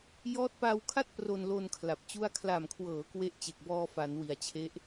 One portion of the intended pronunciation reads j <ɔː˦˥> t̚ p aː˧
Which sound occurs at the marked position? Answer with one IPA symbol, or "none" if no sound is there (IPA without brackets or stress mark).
ɔː˦˥